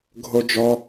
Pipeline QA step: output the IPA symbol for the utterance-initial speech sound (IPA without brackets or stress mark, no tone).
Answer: ɡʱ